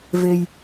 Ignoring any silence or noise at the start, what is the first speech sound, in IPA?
v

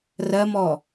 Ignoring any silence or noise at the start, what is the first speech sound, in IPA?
r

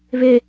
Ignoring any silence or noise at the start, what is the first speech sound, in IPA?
β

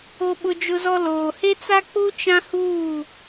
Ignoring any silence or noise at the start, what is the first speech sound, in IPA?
o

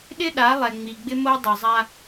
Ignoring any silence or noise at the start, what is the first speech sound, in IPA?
ɗ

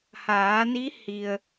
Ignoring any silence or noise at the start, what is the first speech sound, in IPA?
h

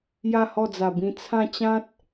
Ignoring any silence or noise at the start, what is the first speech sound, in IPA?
j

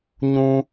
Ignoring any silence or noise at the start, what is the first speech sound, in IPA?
ɲ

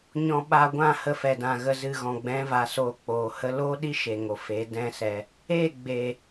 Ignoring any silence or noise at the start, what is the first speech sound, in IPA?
ɲ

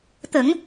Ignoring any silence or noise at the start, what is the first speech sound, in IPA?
t̪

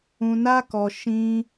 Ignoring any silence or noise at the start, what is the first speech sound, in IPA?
ũ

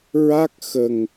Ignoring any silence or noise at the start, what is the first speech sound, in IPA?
ɹ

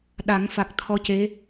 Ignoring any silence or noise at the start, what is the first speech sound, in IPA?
ɗ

